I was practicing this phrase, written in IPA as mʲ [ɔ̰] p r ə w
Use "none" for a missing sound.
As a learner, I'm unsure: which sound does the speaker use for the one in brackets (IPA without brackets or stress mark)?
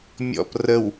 ɔ̰